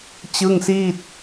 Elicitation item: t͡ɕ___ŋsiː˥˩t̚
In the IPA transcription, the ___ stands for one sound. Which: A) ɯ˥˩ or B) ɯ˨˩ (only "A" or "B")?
A